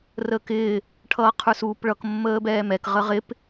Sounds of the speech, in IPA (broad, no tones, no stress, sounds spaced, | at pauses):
r əː k ɪː | ʈʰ ʌː qʰ ə˞ s uː p ɭ ʌ k mː əː b ɛː m ɛ k ʁ ə ʁ ɪ p